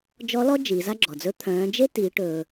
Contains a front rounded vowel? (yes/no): yes